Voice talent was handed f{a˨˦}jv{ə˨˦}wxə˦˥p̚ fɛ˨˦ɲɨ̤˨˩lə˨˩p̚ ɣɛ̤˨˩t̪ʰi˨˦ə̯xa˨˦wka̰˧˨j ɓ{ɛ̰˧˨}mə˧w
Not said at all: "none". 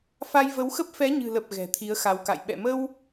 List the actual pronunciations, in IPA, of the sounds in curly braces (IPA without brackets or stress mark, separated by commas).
a˧, ə˨˦, ɛ̰˧˨